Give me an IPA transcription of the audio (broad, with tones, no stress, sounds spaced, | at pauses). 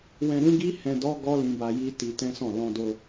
w ɛ̃˧ ɾ ũ˦ ɡ i˦ h ɛ̃˧ d ɔ˦ ɡ ɔ˦ l ĩ˧ b a˧ j i˦ t i˧ t ɛ̃˦ s ɔ̃˦˨ l ɔ̃˧ d o˧